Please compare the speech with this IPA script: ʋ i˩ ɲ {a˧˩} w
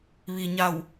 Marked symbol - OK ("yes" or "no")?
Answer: yes